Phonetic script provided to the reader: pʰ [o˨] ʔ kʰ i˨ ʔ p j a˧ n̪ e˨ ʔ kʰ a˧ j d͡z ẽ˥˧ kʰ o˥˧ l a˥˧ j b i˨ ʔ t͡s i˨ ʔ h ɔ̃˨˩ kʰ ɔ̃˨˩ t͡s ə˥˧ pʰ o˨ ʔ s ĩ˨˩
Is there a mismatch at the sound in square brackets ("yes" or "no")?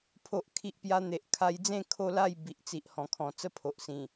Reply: no